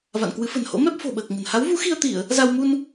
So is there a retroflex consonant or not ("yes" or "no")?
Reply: no